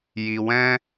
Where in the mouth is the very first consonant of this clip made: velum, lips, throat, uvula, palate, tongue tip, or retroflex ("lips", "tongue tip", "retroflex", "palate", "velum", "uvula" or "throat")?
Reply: palate